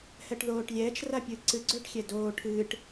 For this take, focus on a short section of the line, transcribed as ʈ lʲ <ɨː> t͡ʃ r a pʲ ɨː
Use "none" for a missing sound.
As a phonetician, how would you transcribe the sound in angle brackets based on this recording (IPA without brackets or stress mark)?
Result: ɛː